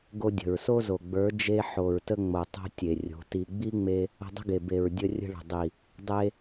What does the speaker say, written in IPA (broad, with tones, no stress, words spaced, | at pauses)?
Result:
ɡo˧dʲə̤˨ɹso˦zo˨ ɡ͡bə˞˨˦d͡ʒe˧ ħo˨ɹtə˦ŋ͡mo˨ tˤo̤˦tʲe˨rʲo̤˨˦ti˧ ɡ͡bi˦ŋ͡me˧ | ə̤˧dˤə̤˦ɡe˨ be˨ɹ dʲə˧ rʲə̤˦˨ɭə̤˨ dˤi˨ | dˤe˧